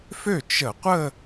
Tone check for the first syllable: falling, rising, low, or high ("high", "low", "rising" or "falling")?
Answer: falling